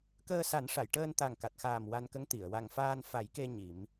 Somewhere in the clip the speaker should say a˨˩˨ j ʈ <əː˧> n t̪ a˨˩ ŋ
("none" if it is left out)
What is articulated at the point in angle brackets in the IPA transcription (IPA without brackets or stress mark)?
əː˧